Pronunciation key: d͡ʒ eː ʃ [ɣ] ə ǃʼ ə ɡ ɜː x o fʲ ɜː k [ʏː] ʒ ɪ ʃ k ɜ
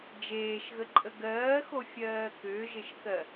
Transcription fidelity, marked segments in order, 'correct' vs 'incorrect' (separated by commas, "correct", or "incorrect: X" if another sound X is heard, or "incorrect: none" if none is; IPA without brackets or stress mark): correct, correct